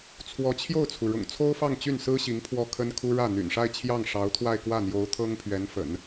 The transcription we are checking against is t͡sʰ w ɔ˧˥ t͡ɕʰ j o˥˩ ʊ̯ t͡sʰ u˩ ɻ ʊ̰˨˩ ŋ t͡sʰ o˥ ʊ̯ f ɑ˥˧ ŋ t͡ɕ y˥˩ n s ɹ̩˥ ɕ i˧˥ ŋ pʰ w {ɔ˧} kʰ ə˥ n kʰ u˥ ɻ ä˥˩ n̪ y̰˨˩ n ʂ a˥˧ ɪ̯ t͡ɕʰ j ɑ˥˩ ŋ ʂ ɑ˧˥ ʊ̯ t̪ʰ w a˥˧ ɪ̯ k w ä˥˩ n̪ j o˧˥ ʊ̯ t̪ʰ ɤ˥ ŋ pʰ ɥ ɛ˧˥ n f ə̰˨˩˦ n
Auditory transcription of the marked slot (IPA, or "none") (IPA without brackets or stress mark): ɔ˥˩